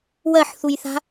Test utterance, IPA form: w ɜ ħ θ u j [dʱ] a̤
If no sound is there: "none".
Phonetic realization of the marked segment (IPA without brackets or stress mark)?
θ